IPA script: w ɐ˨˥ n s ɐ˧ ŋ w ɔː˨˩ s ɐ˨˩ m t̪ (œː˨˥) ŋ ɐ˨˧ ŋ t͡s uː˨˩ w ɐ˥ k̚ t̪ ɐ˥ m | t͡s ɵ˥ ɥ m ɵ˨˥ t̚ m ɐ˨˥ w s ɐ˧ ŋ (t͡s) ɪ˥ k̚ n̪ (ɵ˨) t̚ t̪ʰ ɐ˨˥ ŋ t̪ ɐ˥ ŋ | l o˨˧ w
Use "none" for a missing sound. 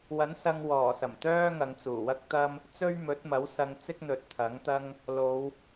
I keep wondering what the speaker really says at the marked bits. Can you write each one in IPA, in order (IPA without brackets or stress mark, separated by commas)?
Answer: œː˥, t͡s, ɵ˨